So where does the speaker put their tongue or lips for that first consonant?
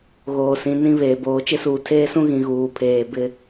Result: velum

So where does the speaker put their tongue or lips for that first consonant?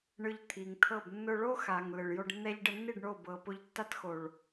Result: retroflex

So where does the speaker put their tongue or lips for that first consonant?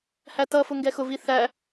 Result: throat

